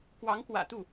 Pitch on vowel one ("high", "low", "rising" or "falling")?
rising